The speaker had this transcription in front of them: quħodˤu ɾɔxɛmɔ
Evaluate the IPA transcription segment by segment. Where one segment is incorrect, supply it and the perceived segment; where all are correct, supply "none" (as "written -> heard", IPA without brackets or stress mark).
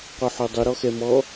none